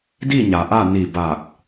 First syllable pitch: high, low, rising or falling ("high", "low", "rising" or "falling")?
falling